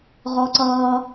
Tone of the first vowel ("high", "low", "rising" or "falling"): high